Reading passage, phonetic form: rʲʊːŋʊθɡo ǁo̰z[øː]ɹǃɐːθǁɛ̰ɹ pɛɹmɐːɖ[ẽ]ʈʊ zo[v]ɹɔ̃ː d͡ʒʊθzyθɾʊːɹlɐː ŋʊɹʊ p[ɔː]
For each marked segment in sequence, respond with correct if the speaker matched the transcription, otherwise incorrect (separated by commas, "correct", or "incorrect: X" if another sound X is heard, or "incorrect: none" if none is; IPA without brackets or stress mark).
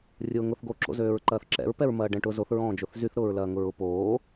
correct, incorrect: ɛ̃, incorrect: θ, incorrect: oː